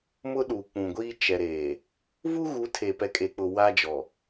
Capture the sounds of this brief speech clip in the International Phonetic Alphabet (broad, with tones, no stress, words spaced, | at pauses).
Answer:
mʊ˦ɗuː˨k͡pũ˨ɡʷiː˦ t͡ʃɛ˨ɾeː˨ | vu˦ɣu˨˦ tʰe˨pɛ˨kʼe˨ k͡pʊ˨ wa˦d͡ʒɔ˨